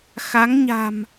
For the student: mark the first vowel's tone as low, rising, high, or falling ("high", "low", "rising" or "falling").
rising